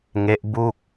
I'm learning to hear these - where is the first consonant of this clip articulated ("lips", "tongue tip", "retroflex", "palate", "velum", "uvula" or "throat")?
velum